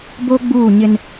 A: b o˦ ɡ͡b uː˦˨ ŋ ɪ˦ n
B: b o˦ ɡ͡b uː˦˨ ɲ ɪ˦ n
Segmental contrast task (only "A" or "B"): B